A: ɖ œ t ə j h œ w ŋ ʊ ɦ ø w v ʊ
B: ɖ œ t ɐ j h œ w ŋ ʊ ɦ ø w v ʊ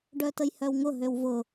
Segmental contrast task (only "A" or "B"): A